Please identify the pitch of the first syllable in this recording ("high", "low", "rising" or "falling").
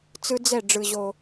high